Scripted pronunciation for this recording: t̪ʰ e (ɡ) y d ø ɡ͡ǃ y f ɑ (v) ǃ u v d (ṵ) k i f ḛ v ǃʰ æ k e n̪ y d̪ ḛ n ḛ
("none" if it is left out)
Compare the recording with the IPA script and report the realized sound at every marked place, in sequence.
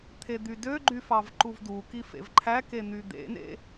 d̪, v, u

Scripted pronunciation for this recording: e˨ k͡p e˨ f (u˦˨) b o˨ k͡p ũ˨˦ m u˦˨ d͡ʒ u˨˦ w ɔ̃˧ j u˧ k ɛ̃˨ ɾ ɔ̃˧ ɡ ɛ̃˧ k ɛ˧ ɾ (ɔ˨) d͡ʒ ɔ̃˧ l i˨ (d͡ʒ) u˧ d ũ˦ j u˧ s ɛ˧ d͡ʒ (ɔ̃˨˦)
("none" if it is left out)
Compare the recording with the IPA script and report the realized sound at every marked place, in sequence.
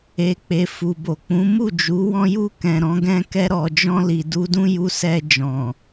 u˨, ɔ˨, d, ɔ̃˨

